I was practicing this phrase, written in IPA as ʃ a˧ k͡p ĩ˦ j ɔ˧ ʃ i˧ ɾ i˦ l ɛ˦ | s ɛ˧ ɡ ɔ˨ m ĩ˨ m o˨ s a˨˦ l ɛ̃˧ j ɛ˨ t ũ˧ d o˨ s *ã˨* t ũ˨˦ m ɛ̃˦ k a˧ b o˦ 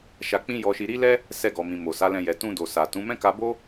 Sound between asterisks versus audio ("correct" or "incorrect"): incorrect